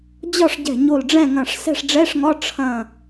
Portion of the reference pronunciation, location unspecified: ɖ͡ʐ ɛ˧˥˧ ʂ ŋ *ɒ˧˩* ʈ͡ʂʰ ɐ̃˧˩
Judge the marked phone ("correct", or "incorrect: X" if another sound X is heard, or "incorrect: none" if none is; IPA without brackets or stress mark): incorrect: ɒ˧˥˧